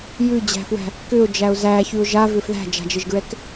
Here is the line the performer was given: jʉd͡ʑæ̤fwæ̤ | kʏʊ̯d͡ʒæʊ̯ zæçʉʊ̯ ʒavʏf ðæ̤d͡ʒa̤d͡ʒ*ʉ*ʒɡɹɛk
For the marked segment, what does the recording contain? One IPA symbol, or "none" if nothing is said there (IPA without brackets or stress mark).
ɘ